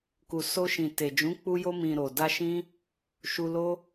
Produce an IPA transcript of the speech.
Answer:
ku˨so˧ ʃĩ˨te˨ d͡ʒũ˨˦k͡pu˧jo˧ mĩ˨ ɾo˨da˧ ʃĩ˦ | ʃu˧lo˦

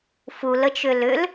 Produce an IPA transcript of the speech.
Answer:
fulət͡ʃʏ lʏl

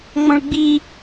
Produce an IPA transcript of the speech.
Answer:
ŋ͡mɔ̃ɭɡ͡bi

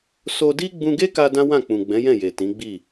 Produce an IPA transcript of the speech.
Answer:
so˧di˦ ɡ͡bũ˧ɡe˦ka˧ dã˦wã˦˨k͡pũ˨ ɡ͡bɛ̃˨˦jɛ̃˦˨je˨ tĩ˨˦ɡ͡bi˦˨

